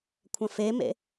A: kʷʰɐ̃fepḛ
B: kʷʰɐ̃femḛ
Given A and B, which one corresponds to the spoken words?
B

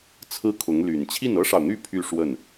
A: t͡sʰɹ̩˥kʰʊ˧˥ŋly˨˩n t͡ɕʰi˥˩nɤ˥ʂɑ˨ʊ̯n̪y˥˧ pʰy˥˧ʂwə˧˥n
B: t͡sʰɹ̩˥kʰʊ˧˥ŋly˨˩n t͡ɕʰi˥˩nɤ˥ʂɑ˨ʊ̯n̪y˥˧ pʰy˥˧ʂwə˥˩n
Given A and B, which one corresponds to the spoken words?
B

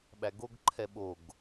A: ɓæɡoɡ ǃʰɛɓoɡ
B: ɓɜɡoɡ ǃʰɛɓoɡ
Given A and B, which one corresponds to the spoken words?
A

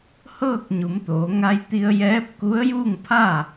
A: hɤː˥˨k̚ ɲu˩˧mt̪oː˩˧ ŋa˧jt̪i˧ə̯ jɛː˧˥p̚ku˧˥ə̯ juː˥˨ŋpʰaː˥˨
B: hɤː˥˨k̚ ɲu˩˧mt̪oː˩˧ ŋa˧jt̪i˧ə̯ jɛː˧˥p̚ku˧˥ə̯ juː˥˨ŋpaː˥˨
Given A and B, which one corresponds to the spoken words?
A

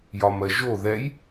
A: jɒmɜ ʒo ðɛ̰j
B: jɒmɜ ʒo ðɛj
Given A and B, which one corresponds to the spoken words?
B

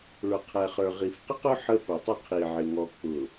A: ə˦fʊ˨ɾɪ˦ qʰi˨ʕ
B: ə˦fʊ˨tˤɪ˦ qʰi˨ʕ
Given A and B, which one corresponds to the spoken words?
B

